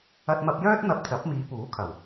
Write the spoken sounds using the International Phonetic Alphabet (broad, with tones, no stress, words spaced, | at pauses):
ɐ˧t̚mɐ˧p̚jœː˥t̚ n̪ɐ˧p̚t͡sɐ˨˥p̚ miː˨˧puː˨˥kʰɐ˨˩w